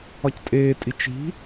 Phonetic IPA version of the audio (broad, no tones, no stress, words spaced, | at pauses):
ɒctʼeːtʼi t͡ʃi̤